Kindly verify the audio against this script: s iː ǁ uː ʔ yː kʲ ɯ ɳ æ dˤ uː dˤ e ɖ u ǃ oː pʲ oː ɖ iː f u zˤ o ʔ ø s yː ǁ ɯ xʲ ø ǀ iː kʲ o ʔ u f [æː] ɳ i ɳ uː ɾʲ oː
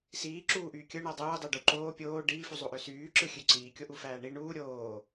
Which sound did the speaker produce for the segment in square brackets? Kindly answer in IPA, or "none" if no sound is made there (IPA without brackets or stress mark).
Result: æː